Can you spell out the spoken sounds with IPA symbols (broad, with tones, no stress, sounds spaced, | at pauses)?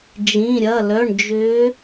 d͡ʒ ĩ˩˧˩ ɾʲ ɐ˩˧˩ l œ˩˧˩ ɳ d͡ʒ ʏː˨˦